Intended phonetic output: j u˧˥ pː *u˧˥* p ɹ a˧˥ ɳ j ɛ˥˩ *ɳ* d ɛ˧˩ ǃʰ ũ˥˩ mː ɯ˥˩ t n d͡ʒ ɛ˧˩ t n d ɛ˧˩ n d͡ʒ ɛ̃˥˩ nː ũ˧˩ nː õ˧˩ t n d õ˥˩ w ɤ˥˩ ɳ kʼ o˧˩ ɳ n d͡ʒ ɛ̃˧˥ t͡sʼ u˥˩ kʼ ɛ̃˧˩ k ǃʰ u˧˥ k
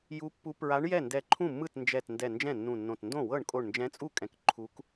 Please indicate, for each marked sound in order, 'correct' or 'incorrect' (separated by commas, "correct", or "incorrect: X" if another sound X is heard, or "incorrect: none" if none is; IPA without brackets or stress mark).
correct, incorrect: n